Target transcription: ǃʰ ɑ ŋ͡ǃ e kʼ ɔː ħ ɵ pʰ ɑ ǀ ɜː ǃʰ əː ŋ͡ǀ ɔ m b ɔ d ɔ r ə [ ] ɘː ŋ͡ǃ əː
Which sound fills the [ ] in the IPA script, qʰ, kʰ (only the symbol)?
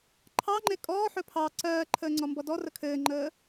kʰ